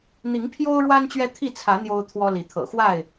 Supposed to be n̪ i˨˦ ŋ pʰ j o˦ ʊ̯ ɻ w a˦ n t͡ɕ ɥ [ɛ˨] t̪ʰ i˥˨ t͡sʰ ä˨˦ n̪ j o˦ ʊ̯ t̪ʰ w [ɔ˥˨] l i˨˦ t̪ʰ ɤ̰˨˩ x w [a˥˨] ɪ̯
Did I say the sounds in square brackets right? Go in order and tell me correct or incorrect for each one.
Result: incorrect: ɛ˦, incorrect: ɔ˦, correct

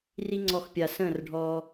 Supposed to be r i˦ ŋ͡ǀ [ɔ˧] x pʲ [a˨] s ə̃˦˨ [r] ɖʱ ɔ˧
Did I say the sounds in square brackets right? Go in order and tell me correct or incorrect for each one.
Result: correct, correct, correct

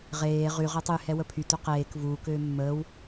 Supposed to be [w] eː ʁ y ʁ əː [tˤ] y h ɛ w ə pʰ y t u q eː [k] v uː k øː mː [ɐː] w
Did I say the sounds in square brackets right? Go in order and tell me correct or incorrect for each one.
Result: incorrect: ʁ, correct, correct, incorrect: əː

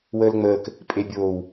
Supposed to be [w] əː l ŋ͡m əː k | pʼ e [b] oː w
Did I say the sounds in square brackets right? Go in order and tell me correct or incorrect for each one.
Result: correct, incorrect: bʲ

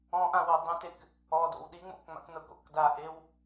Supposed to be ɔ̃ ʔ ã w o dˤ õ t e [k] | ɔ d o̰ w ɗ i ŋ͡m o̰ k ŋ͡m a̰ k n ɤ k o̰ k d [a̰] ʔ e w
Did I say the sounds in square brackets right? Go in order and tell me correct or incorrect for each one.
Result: correct, incorrect: a

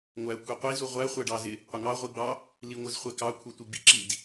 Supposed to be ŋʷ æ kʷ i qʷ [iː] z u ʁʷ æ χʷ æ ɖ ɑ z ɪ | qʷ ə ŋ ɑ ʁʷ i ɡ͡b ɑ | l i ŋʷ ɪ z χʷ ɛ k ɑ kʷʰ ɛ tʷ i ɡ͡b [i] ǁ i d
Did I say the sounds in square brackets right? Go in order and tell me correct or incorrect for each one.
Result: incorrect: i, incorrect: ḭ

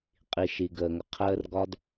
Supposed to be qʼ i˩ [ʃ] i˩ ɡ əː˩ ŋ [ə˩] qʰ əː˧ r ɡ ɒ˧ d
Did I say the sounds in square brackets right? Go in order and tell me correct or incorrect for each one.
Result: correct, correct

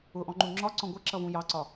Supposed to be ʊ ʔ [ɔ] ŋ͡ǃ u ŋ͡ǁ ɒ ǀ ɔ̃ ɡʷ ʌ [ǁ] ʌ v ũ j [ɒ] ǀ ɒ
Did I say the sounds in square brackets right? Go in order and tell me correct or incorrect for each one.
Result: incorrect: ɔ̃, correct, incorrect: ɑ

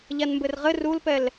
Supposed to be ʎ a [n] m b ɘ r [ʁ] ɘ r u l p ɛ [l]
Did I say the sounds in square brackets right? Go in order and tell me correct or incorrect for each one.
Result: correct, correct, correct

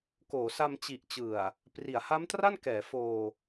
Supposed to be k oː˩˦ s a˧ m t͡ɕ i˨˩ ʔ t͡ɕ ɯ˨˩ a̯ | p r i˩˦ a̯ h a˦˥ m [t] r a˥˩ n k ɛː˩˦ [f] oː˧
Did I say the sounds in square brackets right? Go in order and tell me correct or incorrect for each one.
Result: correct, correct

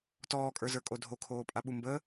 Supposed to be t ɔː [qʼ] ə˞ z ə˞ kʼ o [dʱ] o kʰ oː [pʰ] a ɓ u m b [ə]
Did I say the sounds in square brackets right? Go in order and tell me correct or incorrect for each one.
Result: incorrect: kʼ, correct, incorrect: pʼ, correct

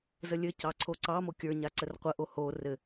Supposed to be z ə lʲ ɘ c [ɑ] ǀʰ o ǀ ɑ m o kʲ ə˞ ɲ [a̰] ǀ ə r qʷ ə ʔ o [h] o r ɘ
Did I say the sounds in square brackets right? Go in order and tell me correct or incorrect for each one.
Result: correct, incorrect: a, correct

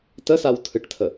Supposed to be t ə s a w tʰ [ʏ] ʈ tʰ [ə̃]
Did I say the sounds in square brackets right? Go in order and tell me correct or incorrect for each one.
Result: incorrect: ɨ, incorrect: ə

